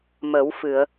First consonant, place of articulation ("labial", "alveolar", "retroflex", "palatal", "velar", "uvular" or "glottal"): labial